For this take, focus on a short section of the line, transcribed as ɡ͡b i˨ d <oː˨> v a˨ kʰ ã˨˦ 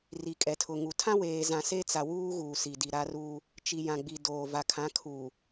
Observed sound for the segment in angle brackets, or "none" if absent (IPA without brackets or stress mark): oː˨